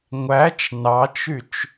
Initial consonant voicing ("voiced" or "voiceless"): voiced